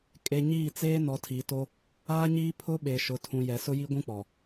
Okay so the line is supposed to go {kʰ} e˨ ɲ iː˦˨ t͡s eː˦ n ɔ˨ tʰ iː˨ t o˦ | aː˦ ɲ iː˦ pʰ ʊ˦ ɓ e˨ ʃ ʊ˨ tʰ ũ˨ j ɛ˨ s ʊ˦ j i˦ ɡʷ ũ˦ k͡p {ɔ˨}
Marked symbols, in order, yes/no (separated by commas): no, yes